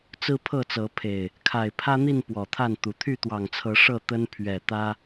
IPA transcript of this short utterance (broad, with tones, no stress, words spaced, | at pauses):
t͡sɹ̩˦pʰɤ˥˨t͡sɤ˨˦pʰe˨˩ɪ̯ | kʰa˨˩ɪ̯pʰä˦n̪i˥˨n pwɔ˨˩t̪ʰa˥˨nt̪u˨˩ t̪ʰy˥˨t̪wɑ˨˩ŋt͡sʰɤ˨˦ ʂɤ˥˨t̪ə˦n pʰɥɛ˨˩t̪ä˦